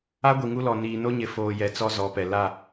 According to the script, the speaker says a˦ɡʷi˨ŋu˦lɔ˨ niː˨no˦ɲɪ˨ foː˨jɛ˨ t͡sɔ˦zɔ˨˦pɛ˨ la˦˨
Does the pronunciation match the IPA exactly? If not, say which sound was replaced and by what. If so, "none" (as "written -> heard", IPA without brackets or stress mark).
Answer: none